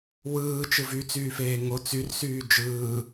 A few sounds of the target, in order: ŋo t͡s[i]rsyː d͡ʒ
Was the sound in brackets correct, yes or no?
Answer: no